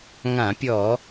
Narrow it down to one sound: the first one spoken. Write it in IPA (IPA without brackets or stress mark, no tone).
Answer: ŋ